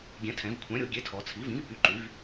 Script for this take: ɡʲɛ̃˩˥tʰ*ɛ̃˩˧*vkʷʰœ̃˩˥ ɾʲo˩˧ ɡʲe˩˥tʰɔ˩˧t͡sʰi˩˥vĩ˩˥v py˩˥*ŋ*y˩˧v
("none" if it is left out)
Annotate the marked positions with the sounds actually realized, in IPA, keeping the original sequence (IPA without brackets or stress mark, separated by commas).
ɛ̃˩˧, ǃ